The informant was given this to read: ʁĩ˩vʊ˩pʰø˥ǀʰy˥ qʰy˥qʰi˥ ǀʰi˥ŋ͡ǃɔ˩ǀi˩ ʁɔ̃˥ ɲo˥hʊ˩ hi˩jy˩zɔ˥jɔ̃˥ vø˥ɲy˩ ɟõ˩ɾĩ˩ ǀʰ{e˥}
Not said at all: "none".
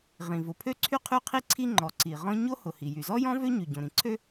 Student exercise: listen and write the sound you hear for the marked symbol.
ø˥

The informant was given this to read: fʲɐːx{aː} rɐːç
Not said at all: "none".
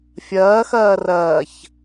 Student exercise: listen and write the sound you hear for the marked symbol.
ɐː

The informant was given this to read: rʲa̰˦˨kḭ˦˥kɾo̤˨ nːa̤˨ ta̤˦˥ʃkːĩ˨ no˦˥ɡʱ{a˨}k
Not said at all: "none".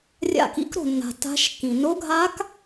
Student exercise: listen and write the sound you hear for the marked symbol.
a˦˥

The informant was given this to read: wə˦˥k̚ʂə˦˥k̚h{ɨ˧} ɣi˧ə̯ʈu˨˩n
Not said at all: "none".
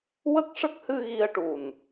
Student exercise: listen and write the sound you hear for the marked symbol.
ɨ˧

